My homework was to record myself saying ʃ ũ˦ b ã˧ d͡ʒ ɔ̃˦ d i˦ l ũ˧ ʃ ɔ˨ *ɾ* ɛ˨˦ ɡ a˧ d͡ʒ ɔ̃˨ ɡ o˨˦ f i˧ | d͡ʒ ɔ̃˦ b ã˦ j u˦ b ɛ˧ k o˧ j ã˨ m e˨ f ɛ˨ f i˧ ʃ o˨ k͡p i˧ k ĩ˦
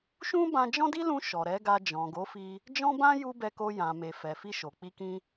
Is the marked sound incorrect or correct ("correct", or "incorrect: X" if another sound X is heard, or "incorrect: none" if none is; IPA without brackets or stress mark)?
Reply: correct